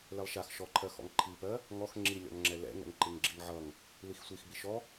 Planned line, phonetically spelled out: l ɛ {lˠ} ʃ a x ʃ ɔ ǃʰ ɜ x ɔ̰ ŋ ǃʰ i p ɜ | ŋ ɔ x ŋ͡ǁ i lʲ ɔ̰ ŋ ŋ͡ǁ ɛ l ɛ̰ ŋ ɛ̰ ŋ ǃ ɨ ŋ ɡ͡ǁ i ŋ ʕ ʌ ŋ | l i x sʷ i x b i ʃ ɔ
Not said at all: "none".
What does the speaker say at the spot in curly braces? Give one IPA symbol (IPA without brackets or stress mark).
lˠ